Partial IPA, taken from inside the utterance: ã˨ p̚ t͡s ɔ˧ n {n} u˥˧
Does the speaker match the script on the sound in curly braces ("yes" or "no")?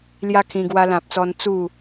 no